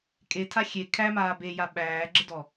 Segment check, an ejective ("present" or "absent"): present